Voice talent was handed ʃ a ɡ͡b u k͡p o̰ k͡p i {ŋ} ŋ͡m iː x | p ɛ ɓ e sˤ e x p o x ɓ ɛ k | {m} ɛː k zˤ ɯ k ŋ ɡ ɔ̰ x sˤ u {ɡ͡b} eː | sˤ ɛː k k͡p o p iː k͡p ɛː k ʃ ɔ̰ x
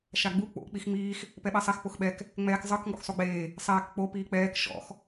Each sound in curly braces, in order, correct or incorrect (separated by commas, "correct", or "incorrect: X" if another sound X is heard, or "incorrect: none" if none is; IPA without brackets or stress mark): incorrect: x, incorrect: ŋ͡m, correct